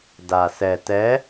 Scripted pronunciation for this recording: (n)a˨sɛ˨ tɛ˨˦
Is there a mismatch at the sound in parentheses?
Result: yes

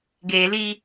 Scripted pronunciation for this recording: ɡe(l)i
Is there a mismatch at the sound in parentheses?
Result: no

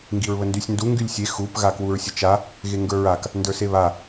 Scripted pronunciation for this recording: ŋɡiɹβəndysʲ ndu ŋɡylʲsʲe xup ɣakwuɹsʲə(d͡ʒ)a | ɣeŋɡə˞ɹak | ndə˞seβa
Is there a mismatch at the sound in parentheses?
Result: yes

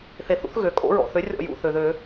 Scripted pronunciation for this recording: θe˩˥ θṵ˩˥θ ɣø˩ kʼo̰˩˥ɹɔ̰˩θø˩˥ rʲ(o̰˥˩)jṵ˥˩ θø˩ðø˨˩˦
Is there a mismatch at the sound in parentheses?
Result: yes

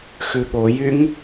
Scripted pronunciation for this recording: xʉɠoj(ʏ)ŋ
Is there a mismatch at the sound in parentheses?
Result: yes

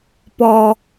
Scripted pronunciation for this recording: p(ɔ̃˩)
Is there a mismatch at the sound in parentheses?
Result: yes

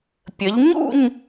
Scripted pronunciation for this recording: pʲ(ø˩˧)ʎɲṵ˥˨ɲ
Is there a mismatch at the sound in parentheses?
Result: yes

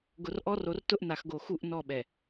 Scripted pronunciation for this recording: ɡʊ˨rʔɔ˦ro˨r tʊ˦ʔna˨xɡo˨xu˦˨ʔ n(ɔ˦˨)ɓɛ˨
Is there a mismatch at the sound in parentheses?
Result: no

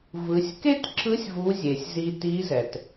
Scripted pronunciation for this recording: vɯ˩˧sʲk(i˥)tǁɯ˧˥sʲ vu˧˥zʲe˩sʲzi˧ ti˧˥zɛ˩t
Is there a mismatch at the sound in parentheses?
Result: yes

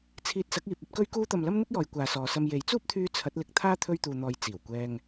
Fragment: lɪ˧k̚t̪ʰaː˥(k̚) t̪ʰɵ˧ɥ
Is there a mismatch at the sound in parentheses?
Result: yes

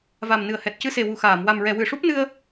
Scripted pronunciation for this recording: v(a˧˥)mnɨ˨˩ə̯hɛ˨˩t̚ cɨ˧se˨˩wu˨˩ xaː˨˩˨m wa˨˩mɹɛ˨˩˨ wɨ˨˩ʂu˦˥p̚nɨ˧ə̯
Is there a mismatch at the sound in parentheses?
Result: yes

